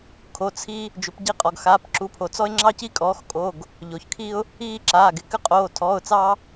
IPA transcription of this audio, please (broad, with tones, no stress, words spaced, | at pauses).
kʰo˩˧˩t͡sʰi˦ | d͡ʒʏ˩˧pɟi˦qʼɔ˩ɡxaː˩˧˩p ǁu˩˧pʰo˩t͡sɔ˦ɪ̯ ŋ͡ǁɑ˦ci˦kʼɔː˩˧xkʼo˩˧˩ɡ | ʎo˩çkʰi˦ʊ̯ | iː˦ǁaː˩˧˩ɡɪ˦ kʏ˦qʼoː˩˧˩ tʰɔː˩˧˩ʊ̯t͡sɑ˦